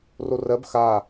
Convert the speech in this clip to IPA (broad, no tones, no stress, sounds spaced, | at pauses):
r o r ɜ b x a